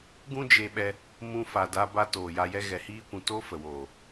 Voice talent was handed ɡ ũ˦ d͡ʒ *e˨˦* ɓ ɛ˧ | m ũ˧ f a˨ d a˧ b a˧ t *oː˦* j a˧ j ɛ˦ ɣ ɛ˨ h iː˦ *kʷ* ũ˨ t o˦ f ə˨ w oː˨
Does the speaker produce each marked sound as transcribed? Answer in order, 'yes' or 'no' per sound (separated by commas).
no, no, yes